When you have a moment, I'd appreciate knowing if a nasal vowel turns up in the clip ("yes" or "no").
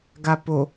no